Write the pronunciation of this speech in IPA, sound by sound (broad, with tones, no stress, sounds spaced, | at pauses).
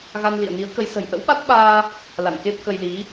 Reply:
ɣ a˧ n l ḭ˧˨ ə̯ n i˨˦ ə̯ k ə˨˦ j s ə̤˨˩ j ʔ ə̰˧˥ w ɓ a˦˥ t̚ ɓ aː˧ | l a̰˧˨ n k e˦˥ p̚ k ə˧ j l i˨˦